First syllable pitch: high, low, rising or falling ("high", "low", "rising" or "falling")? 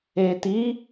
low